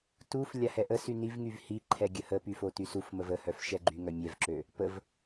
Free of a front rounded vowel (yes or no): no